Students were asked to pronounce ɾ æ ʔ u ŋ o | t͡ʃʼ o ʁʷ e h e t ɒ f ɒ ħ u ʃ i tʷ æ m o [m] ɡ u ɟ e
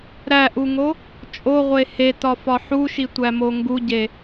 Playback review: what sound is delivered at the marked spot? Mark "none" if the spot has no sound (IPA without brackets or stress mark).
ŋ